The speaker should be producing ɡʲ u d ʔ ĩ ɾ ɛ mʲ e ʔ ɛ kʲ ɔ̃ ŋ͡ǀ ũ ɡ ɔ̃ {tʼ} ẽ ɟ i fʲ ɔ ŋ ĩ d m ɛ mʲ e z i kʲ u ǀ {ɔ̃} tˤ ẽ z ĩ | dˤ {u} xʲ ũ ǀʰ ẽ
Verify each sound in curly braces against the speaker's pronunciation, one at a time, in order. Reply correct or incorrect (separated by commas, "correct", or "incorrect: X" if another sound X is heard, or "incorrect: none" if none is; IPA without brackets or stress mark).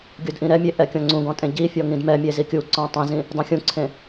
correct, correct, incorrect: ũ